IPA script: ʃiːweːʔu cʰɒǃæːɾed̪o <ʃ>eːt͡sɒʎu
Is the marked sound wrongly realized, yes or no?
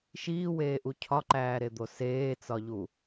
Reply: yes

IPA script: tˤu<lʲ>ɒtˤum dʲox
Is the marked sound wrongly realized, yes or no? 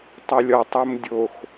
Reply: no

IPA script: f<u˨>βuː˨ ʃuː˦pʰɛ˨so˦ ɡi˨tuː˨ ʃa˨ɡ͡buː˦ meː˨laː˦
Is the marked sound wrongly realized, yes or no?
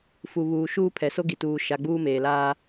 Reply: no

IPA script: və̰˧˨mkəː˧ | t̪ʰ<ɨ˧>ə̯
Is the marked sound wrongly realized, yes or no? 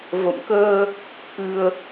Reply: no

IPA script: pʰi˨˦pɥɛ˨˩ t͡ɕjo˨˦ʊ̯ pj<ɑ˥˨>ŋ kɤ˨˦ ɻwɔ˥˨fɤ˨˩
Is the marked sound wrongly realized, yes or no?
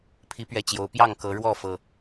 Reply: no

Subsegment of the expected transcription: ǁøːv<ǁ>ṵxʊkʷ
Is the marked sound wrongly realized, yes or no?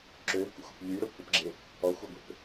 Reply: yes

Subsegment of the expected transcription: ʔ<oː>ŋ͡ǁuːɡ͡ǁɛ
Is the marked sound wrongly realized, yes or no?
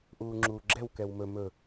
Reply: yes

